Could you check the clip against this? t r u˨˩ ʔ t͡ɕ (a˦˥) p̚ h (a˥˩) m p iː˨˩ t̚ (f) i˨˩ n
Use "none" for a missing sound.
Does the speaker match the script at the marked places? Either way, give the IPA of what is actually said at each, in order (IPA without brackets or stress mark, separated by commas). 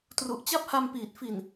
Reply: a˦˥, a˧, f